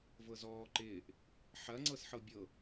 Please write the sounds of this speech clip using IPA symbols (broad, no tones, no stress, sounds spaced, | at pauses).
v ɤ z ɔː ǃ ɪː ʔ | ħ ɐ ŋ͡ǀ ɤ s ħ ɤ bʲ ɤ